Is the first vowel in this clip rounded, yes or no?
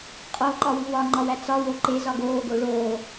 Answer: yes